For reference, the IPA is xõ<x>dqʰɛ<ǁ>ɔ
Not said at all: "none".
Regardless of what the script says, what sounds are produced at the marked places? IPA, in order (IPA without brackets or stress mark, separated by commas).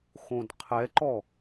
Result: none, ǃ